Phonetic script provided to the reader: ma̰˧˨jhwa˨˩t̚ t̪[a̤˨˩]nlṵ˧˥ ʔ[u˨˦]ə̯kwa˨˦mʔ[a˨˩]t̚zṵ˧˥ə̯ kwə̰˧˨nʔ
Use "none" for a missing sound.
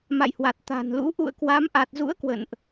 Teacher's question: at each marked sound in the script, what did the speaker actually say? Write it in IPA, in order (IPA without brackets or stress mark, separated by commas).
a̤˨˩, ṵ˧˨, a˨˩